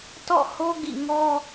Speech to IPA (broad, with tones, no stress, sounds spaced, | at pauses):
t ɔ̰˦˨ h o˦ ɡ ḭ˦˨ ŋ ɔ˦